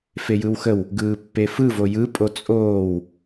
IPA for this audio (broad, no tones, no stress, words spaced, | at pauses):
fejɯwxəw | ɡɯːpːefɯvo jɯpʼo t͡sʼoːw